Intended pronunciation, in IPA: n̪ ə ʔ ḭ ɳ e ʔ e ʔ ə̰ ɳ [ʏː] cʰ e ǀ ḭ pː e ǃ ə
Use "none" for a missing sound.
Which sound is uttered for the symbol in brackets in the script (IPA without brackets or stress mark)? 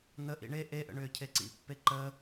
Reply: ʏː